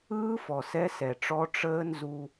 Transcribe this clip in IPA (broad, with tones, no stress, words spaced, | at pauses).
ɯː˦ fɔ˨sɛ˦sɛ˨ʈ͡ʂɔ˦ ʈ͡ʂəː˦nzu˦